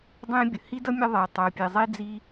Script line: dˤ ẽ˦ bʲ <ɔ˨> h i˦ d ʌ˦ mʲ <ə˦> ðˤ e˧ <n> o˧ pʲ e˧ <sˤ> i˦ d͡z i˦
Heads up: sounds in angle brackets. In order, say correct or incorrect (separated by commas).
incorrect, correct, incorrect, incorrect